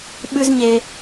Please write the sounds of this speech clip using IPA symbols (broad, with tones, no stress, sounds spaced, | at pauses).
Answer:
ɓ ʉ˥ z ɲ e˧